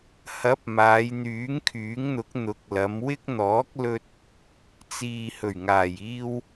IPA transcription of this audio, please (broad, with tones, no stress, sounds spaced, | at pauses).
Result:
h ɐ˨˥ p̚ m aː˨˧ j n̪ yː˨˥ ŋ kʰ yː˨˥ ŋ n̪ ʊ˨˥ k̚ n̪ ʊ˨˥ k̚ l ɐ˨˧ m w ɪ˥ k̚ n̪ ɔː˨˥ k̚ l ɵ˧ t̚ | t͡s iː˨ h ɵ˨˩ ɥ ŋ aː˨˩ j iː˧ w